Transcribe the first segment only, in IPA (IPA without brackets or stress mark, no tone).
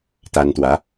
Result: t̪